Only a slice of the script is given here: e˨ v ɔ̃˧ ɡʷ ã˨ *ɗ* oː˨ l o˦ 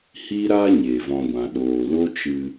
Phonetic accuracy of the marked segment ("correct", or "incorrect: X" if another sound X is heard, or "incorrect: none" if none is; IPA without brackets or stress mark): correct